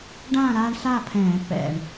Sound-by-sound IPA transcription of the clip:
ɖ ãː˥˨ ɾ aː˦ ɳ ɬ aː˥˨ pʰ ɛ̃ː˧˩˧ pː ɛ̰˨˩ ɳ

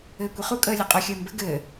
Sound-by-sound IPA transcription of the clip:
ɘː kʷ i χ u kʼ əː lʲ e qʼ œ xʲ əː m b ɘ ɡ ɘː

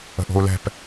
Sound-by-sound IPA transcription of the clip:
ə̤ ʔ o̤ u̯ l ɛ̤ p

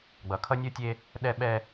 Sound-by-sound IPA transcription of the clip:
ɡ͡b ʌ˨ kʰ ʌ˦ nʲ o˦ tʲ e˦ | ɗ ɛ˦ ɓ ɛ˦

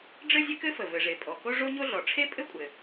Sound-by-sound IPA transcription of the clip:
ɖ͡ʐ ɘ˥ zʲ ɘ˥ k ɘ˥ f ə˩ v ɘ˩ ʐ e˩ pʼ ɔ˩ k o˥ ʐ o˥ ɲ o˥ ɮ ɔ˩ ʈ͡ʂʰ e˥ pʼ ɘ˥ kʷʼ ɘ˩

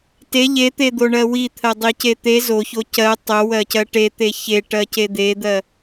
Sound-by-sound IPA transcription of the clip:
t e ʎ e t̪ e d̪ o ɳ ɜ w i t̪ʰ ɜ dˤ i c e t̪ e z o ç o c ɜ tˤ o w ɜ c ɜ ʈ e t̪ e ç e ʈ ɜ c e d̪ e d̪ ɜ

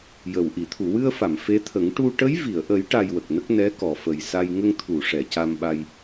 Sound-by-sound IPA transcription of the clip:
j ə˨˩ w ʔ i˨˩˨ t̪ʰ u˨˩˨ w ɨ˧ ə̯ f a˨˩˨ m f e˧˥ t̪ʰ ə˨˩˦ ŋ ʈ u˧ ʈ ə˧˥ j v i˨˩˨ ə̯ ʔ ə˨˩˦ j ʈ a˧ j w ə˨˩ k̚ n ə˦˥ k̚ n ɛ˧˥ k ɔ˨˩˨ f ə˨˩ j s a˧ j ŋ ə˧ ŋ t̪ʰ u˨˩˨ ʂ ɛ˨˩˨ c a˧ m ɓ a˧ j

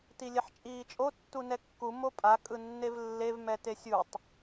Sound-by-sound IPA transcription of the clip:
t i lʲ ɛ ħ t͡ʃʼ iː t͡ʃʼ o tː u n ɛ kː u m o pʼ a kʼ ɯ nː e v lː e v m ɛ t e sʲ u tˤ

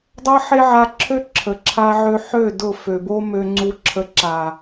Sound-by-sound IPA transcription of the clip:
dˤ ʌ˦ ħ e˦ ʕ a˧ ǁʰ ø˦ ǁʰ ə˨ ǁʰ a˧ ʕ ø˧ ħ ø˦˨ d ʊ˦˨ f ø˨ b o˦ m ø˧ ŋ͡ǀ u˧ ǁʰ ə˧ ǁ a˨

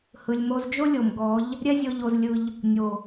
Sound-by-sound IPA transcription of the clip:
h ɯ˨ lʲ m o˧ z d͡ʒ o˦ lʲ o˨ m ɡ ɔ˨˦ ʎ | ɾʲ ɛ˦ zʲ ɤ˧ ʎ o˧ z lʲ ɯ˧ ʎ | nʲ o˨

